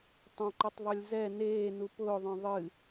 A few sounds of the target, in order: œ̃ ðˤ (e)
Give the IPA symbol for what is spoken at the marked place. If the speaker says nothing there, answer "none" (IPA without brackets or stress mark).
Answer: ɨ